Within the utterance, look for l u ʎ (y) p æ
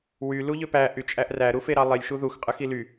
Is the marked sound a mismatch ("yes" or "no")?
yes